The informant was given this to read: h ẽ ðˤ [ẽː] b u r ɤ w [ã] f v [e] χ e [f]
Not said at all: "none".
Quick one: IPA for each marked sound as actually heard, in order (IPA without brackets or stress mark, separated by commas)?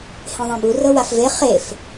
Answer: ẽ, a, e, f